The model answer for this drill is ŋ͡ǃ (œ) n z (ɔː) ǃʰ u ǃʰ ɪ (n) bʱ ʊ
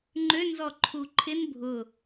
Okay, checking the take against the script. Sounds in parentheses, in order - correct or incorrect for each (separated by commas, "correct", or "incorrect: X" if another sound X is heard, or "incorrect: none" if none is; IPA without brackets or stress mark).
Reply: incorrect: ø, incorrect: ɔ, correct